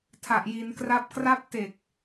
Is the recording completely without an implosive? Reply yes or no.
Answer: yes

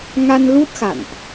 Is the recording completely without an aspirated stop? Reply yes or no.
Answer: yes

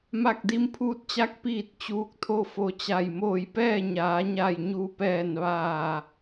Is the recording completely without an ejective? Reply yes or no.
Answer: yes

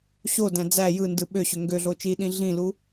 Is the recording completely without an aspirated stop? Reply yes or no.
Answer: yes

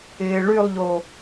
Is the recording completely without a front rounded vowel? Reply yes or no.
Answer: no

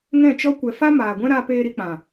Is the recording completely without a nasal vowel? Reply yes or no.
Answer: no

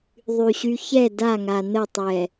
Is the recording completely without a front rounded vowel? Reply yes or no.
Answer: no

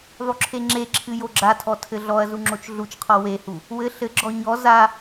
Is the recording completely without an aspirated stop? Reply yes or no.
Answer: no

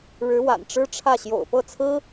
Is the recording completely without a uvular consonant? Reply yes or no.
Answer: yes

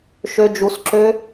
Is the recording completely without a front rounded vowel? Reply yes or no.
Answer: no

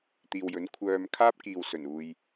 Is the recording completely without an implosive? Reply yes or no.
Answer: yes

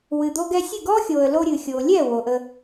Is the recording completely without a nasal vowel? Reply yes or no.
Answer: yes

